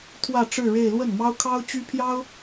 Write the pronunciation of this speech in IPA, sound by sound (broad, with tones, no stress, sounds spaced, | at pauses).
t̪ʰ w ä˥˧ ʈ͡ʂ ɻ̩˥˧ ɻ e˥˧ ɪ̯ l w ə˥˩ n m ɑ˥ ʊ̯ kʰ ɑ˥ ʊ̯ t͡ɕ y˥ pʰ j ɑ˥ ʊ̯